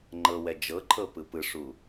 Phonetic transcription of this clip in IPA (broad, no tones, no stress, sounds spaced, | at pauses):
ŋ͡ǃ ɤ w ɛ d͡ʒ ɤ ǃʰ ɤ p ɯ p ɯ ʂ u